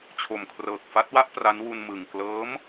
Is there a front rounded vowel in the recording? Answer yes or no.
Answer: no